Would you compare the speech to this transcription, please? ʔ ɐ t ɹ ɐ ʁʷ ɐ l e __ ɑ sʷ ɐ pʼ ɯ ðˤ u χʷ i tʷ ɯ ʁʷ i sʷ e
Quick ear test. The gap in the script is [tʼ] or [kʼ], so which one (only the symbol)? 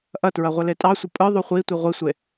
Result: tʼ